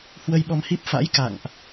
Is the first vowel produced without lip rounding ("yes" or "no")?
yes